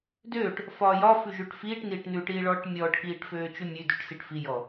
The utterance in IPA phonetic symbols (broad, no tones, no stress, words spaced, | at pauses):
døːʈ | fɒːjɒfʉ ʒʉʈfiːʈniːʈ nʉʈiː ɭɔːʈmʲɔːʈkiːʈ føːt͡ʃʉmʲʉdʉʈ siʈfijɔ